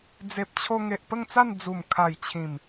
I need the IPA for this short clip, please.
d͡z e˨ p̚ t͡ɕʰ o˧ ŋ e˨ ʔ p ə˥˧ ŋ t͡s a˥˧ n d͡z u˨˩ m kʰ a˨˩ j t͡ɕʰ ĩ˨˩ m

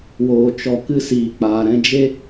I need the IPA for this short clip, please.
w oː˨ t͡ʃ ɔ˨ k ɨ˧ s iː˨ k͡p aː˨ ɾ ɛ̃˧ d͡ʒ e˦

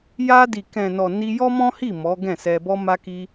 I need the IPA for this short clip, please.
j a˧ d i˨ k ɛ̃˨ n ɔ˨ n i˧ j ɔ˦ m ɔ̃˦ h i˦˨ m ɔ˨˦ ɡ ɛ̃˦˨ s ɛ˧ b ɔ˧ m a˧ k i˧

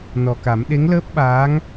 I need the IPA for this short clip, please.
n ɔ˨˩ k a˨˩˦ m ɗ e˧˥ ŋ l əː˦˥ p̚ ɓ aː˧˥ ŋ

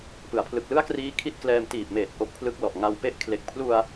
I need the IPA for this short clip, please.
p ɯ˩˦ a̯ pʰ l ɯ˨˩ k̚ l ɯ˥˩ a̯ k r iː˦˥ kʰ i˥˩ t̚ k l ɛː˧ m t iː˨˩ p̚ m eː˨˩ t̚ ʔ o˦˥ k̚ pʰ l ɯ˦˥ k̚ l ɔ˨˩ ʔ ŋ a˧ w p e˦˥ ʔ kʰ l e˨˩ k̚ pʰ l u˧ a̯

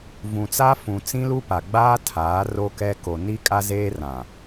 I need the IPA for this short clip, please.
v ũ˨ t͡s a˦ f ũ˨ t͡s ĩ˦ l u˦ p a˨ ɡ͡b aː˦ tʰ aː˨˦ r o˦ k ɛ˦ k o˨ n i˦ kʼ a˦ z eː˦ r ã˨

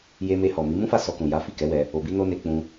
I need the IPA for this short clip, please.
j e˧ m e˧ h ɔ˨ m i˨˦ m ũ˦ f a˦˨ s ɔ˧ k ũ˨ j a˨˦ f i˦˨ k ɛ˨˦ w ɛ˧ | o˨ b i˧ n o˧ n e˧ k͡p ũ˧

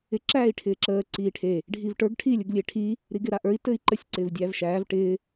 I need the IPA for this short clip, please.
ɪ ǁ æː i̯ ʈʰ ɪː ǁ əː ǀ iː ʈʰ e | ɖʱ i v ʈ ə˞ ɡ ʈʰ iː lʲ ə ɡ lʲ e ʈʰ i | ɾ i ɡ ɪ ɾ a ʔ ə˞ i̯ t ɘ i̯ ǃ ə sʲ ǀ ɪː v dʲ æː v ʃ æː v ʈ ɪː

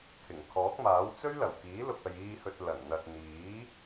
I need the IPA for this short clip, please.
kʰ ɪ˨˩ ŋ kʰ ɔː˨˥ k̚ m aː˨˥ w t͡s ɵ˥ ɥ l ɐ˨˩ w k iː˨˥ l ʊ˨ k̚ ɐ˨ j iː˧ h ɵ˨ t̚ l ɐ˨˩ n n̪ ɐ˨ t̚ n̪ iː˨˥

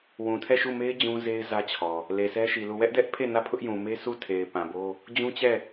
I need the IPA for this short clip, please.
w ũ˨ tʰ ɛ˦˨ ʃ u˦˨ m e˦ ɪ̯ d͡ʑ ũ˦ z e˦ ɪ̯ z ä˦ t͡ɕʰ ɔ˨ | l e˨ sʰ ɛ˦ ʃ i˨ l u˦˨ w ɛ˦ ʔ d ɛ˦ ʔ pʰ e˦˨ n ä˦˨ pʰ ʊ˦ ʔ j ũ˨ m e˦ s u˦˨ tʰ e˨ ɪ̯ p ã˨ b o˦ | d͡ʑ ũ˦ t͡ɕ ɛ˦˨

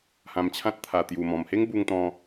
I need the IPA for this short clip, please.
h ã˧ m t͡ɕʰ ã˦ t̚ t̪ʰ a˨˩ t̪ j u˨˩ m ɔ̃˨˩ m h e˦ ŋ b u˧ ŋ t̪ ɔ̃˧

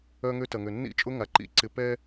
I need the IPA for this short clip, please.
œ˦ ŋ ø˦ t ɐ˨ ŋ ø˨ nː ḭ˦ t͡ʃʼ ʊ˦ ŋ a˨ ǃ ḭ˨ ǀ ɪ˨ p ɛ˦

